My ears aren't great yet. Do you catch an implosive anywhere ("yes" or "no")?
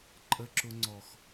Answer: no